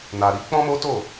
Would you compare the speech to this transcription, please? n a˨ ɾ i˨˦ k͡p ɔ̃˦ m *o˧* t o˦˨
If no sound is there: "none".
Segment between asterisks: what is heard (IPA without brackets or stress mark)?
o˦